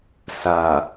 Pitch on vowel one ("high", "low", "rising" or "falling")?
low